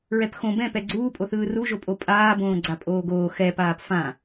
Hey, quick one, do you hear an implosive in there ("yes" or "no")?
no